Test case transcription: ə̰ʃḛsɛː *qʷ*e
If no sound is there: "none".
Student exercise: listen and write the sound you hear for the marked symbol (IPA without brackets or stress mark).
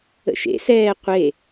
qʷ